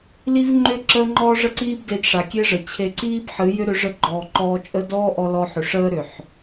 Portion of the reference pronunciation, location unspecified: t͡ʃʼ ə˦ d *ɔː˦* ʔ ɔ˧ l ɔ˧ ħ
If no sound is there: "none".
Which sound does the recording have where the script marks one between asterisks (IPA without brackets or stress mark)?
ɔː˦